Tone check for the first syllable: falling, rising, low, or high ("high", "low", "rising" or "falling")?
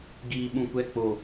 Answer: low